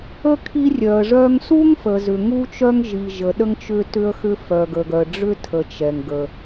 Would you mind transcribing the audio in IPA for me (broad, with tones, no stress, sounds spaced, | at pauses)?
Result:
ə˥ kʰ i˥ rʲ œ˩ ə̯ ʐ œ˥ ŋ s u˥ ŋ f ə˩ z ʏ˩ ŋ u˥ t͡ʃ œ˥ ŋ ʒ i˩ ʒ ə˩ ɗ ə˥ ŋ t͡ʃ ʏ˥ t ʏ˥ ə̯ x ʏ˥ f œ˩ ɡ ə˩ ɡ œ˩ ə̯ ɖ͡ʐ ʏ˥ tʰ ə˩ t͡ʃ ɛ˩ ŋ ɡ ə˩